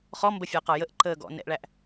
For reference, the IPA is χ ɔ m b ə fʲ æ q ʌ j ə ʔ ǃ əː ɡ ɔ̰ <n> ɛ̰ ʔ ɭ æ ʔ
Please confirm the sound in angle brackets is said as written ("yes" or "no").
yes